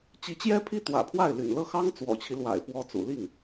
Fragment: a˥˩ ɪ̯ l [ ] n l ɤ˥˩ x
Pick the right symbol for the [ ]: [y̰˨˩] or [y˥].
y̰˨˩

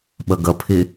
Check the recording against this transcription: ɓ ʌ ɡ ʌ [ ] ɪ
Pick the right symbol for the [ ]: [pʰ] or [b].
pʰ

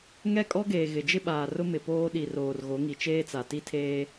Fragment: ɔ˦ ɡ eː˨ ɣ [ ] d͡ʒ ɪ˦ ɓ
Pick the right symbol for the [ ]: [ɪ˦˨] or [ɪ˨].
ɪ˨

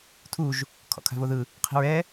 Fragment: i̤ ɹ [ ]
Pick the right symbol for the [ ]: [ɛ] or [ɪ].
ɛ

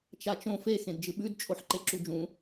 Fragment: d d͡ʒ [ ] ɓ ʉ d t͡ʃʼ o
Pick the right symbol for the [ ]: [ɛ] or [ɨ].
ɨ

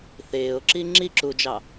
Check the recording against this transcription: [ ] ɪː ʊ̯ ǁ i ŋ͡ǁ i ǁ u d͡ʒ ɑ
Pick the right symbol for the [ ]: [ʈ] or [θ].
θ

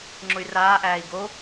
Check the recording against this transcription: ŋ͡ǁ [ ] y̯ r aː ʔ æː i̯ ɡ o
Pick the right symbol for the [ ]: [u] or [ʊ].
ʊ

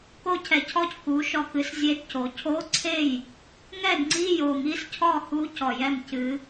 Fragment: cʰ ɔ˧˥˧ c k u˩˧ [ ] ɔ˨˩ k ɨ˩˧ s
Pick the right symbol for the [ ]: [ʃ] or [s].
ʃ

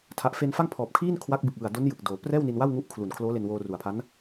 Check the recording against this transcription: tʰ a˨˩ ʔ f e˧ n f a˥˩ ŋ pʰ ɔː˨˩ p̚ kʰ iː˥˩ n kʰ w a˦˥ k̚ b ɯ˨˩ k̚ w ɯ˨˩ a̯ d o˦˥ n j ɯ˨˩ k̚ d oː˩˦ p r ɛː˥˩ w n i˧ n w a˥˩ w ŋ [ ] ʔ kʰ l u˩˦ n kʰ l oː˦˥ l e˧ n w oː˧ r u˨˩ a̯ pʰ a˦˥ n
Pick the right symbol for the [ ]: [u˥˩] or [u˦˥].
u˦˥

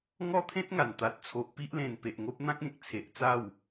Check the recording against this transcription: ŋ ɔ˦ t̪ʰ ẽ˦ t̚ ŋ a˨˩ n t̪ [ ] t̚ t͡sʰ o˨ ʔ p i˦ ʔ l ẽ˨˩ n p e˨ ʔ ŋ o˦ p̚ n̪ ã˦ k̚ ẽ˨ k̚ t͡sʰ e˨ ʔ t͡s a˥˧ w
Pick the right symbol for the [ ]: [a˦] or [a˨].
a˨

